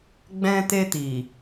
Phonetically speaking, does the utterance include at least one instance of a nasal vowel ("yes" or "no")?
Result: yes